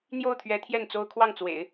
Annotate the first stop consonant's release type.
aspirated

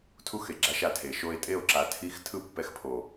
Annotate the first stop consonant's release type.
aspirated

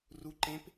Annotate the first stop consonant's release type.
click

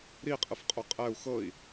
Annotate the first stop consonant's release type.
ejective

